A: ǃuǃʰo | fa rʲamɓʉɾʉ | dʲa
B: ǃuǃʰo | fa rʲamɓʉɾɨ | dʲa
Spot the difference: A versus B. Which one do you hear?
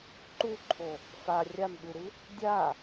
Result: B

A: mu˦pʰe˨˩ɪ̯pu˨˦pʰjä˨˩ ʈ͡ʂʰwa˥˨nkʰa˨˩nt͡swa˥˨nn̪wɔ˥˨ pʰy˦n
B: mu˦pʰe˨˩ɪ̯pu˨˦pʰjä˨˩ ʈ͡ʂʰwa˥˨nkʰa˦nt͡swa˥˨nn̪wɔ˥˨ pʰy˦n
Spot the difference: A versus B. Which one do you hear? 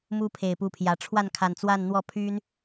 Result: A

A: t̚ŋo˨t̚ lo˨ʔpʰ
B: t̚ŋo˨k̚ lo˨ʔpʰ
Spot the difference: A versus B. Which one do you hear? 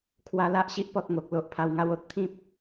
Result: B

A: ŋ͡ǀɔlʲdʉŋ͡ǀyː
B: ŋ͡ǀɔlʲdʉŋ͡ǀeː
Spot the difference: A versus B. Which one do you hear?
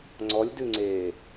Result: B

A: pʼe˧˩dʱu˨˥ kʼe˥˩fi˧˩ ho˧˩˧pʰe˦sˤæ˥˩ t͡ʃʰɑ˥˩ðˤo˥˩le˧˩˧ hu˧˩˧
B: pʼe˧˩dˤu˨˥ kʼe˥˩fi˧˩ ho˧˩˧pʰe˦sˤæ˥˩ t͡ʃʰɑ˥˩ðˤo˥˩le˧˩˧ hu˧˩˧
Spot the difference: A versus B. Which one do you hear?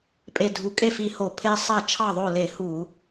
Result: A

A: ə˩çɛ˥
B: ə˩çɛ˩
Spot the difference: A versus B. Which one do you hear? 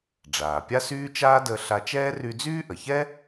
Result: A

